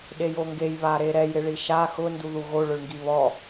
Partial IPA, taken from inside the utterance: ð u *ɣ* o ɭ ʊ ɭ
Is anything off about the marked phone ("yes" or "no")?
no